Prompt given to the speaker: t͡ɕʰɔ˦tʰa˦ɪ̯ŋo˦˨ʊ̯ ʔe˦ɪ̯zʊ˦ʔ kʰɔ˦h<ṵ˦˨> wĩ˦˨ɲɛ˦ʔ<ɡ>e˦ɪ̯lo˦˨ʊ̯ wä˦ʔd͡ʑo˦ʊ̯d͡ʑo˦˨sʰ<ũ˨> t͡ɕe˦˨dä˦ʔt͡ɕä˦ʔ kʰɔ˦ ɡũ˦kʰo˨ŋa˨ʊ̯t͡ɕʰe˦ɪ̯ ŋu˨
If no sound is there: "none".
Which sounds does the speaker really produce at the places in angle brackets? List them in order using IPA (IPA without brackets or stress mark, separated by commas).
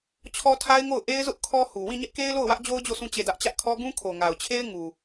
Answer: u˨, k, ũ˦˨